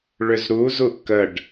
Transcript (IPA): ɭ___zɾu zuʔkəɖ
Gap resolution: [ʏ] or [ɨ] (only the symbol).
ʏ